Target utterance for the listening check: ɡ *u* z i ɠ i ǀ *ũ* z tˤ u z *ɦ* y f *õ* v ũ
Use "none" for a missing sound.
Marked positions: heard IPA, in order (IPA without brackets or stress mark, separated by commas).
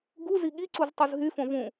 u, u, ɦ, õ